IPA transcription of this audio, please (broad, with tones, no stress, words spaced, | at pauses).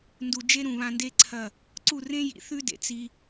ndu˨d͡ʒe˦ ɾũ˨βã˧nde˦ǀʰɐ˦˨ | ǀu˦˨rẽ˦ jḭ˨˦θʉ˦dḛ˨ t͡si˧